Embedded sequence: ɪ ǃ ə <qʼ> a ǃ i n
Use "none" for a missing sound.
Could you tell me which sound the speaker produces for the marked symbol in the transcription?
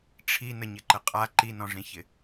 qʼ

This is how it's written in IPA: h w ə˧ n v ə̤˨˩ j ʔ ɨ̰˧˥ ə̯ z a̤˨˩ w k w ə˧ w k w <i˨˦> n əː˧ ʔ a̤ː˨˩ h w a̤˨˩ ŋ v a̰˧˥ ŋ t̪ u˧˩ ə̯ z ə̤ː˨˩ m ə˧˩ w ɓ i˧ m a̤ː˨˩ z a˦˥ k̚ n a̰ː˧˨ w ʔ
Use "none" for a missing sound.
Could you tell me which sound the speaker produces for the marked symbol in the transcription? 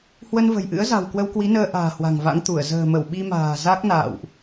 i˨˦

